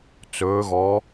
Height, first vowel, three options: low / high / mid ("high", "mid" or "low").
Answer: mid